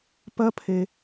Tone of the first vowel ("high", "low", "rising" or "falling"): high